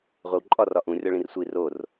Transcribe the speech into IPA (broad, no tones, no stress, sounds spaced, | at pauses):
ʁʷ e w ǃʼ ɒ r ɒ ʔ ũ rʲ ɒ ɭ ĩ r sʷ i r o r